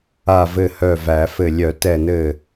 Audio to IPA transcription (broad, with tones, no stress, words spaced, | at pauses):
a˧˩vɘ˧˩ hœ˧˩væ˨˩˦fɘ˧˩ lʲœ˨˩˦tɛ˧˩nɘ˧˩